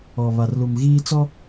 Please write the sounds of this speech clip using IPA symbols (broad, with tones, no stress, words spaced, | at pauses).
ɔ˨ βa˨rlu˨m ɣiː˦t͡sɔ˦